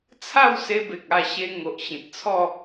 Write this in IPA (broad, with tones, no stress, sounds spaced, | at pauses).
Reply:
t͡sʰ a˥˧ w s e˧ b e˨ k̚ a˧ ɕ e˧ ŋ o˨ ʔ ɕ ĩ˨ t̚ t͡sʰ ɔ˥˧